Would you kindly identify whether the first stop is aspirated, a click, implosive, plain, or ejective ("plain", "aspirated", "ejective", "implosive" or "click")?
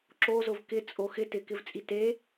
click